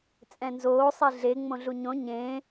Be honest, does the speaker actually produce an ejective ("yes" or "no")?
yes